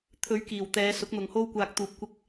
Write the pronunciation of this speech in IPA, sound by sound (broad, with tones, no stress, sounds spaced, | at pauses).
t̪ʰ ɵ˨˧ ɥ k iː˨˩ w t̪ ɛː˨˧ s ʊ˨˥ k̚ n̪ ʊ˨ ŋ h o˥ w kʷ aː˧ k̚ t̪ uː˧ p̚ kʷ ɪ˥ k̚